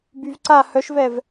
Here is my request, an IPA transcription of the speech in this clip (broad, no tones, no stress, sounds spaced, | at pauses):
b y v ǀ a h œ ʃ v ɛ v